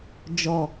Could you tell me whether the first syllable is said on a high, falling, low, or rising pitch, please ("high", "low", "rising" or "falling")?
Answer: low